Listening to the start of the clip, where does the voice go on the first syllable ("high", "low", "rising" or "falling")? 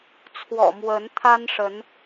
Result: low